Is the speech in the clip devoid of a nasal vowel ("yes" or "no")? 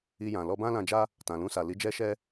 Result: no